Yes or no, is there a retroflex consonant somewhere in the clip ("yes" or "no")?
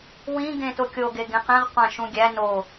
no